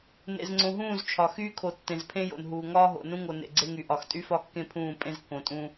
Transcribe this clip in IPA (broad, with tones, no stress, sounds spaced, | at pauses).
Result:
n ḛ˨ z ŋ͡ǀ õ˨ ɦ ũː˦˨ z t͡ʃʰ ɒ˨ x yː˦ kʰ o˨ tː ẽ˨ z pʰ ẽ˦ j o̰˨ n ɦ uː˨ ŋ ɒː˦ ɦ o̰˨ n ũ˦ ŋ o˨ n ḛ˨ ɡ͡ǀ e˦ ŋ y˨ ʔ ɒ˨ x tʼ y˦ f ɒ˦ kː ẽ˦ pʰ ũː˦˨ pʼ ẽ˦ z kː õ˨ tʼ ũ˦